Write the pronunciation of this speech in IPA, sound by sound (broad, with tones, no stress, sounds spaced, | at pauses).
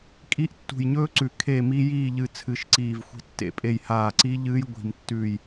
kʼ i˦˥ ʔ tː ṳ˧˩ j ɲ ɵː˦˥ ǀ ʉ˧˩ kʰ e˥˨ m i˦˥ j iː˥˨ ʎ ɨ˧˩ t͡sʰ ɨ˧˩ ʃ ǀ iː˧˩ v xʷ i̤˦˥ tː ḛ˧˩ pʼ e˥˨ j h aː˧˩ ǀ i˦˥ ʎ ɨː˦˥ j ɡʷ i̤˧˩ m tː ʉː˥˨ j